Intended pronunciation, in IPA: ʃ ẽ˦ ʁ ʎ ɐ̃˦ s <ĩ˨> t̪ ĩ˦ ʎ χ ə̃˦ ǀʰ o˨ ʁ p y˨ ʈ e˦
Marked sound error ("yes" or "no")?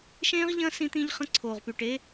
yes